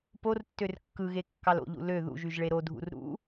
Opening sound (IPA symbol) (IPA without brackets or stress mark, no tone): p